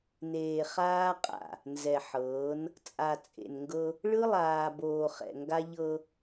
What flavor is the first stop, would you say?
ejective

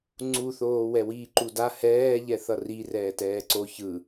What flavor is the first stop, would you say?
click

